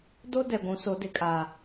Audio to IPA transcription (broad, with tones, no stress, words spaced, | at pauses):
do˦ dɛ˨ ɡʷũ˨˦so˨˦dɪ˨kʼaː˨